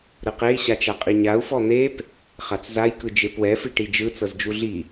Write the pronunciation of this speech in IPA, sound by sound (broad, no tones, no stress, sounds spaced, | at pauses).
ɾ ɯ q e i̯ ɕ a t͡ʃ a qʼ i ɲ a u̯ f ɔ n̪ e p | χ a t͡s z a j k ɯ d͡ʒ e p w ɛ f i ʈ i d͡ʒ ɯ t͡s ɤ z d͡ʒ u ɮ i